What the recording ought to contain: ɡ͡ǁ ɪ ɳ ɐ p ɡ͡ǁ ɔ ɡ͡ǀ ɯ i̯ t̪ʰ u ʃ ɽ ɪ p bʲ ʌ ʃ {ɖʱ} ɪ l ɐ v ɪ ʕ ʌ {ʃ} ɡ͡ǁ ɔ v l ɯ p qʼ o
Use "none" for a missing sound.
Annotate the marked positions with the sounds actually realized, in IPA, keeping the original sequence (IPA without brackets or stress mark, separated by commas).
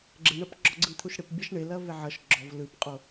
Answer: ɳ, ʃ